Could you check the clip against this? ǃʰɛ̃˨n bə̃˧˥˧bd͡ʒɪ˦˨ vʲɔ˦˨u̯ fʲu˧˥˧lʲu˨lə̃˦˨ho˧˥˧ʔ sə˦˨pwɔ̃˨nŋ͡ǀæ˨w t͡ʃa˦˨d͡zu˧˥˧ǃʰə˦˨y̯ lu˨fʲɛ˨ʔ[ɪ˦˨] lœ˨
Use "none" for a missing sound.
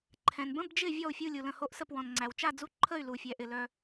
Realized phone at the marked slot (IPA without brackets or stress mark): ɪ˨